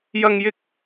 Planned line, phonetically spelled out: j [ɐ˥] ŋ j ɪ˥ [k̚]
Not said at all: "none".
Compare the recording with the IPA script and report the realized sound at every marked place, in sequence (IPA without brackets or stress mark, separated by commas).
ɐ˥, k̚